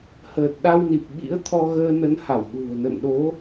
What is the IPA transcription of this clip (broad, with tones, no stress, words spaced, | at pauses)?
həː˨˩t̚ɗa˧wni˨˩p̚ɓḭ˧˥ə̯ t̪ʰɔ˧ɣəː˧nə˨˦nha˧˩w ɗṳ˨˩ə̯nə̰˧˨nɗo˨˦